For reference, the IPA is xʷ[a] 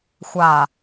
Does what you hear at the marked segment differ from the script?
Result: no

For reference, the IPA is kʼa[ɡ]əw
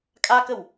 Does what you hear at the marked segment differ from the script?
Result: yes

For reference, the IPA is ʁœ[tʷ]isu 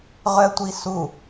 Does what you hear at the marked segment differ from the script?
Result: no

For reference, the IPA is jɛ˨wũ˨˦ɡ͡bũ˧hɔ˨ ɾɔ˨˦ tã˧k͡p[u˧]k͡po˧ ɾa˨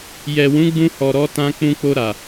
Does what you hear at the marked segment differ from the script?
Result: yes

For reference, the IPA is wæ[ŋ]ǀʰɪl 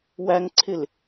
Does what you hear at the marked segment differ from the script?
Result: no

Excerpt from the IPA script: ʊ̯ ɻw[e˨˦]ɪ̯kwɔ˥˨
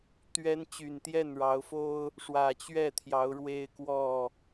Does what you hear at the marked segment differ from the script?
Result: yes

